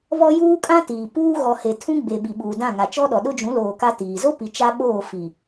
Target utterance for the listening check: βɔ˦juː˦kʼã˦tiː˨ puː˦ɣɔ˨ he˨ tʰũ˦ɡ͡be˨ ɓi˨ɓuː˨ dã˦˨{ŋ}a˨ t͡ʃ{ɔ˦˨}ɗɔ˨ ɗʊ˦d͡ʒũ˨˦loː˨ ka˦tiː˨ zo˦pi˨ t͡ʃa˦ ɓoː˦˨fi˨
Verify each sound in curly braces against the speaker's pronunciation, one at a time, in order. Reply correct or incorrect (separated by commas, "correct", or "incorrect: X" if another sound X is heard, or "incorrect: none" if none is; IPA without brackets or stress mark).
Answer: correct, incorrect: ɔ˦